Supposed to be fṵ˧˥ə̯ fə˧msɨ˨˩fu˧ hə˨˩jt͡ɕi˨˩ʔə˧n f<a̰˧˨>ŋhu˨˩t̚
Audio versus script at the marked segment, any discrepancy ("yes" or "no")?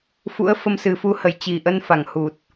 yes